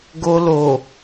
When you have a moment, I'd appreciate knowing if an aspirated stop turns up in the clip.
no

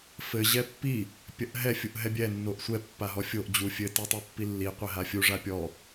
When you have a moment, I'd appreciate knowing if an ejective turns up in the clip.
no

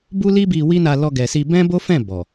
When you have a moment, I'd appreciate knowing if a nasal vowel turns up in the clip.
yes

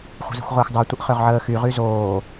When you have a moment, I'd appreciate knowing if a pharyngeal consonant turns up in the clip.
yes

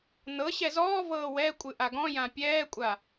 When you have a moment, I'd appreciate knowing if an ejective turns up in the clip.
yes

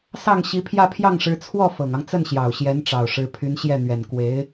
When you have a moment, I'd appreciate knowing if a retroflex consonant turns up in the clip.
yes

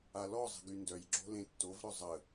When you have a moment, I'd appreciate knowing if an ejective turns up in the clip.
no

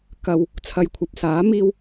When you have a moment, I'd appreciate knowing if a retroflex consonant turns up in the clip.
no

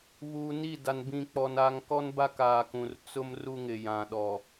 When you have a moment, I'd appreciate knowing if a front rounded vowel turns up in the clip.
no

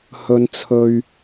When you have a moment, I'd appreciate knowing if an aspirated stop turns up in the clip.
yes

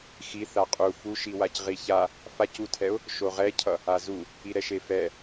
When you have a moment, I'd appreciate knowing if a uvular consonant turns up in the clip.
yes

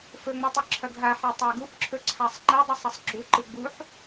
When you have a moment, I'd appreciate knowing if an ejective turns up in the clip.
no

